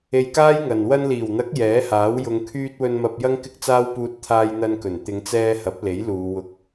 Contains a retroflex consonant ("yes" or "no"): no